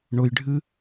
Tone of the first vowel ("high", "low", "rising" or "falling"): low